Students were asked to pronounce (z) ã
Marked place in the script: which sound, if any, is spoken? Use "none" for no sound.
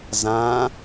z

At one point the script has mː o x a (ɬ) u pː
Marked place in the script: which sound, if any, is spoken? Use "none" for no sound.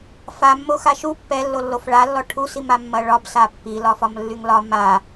ʃ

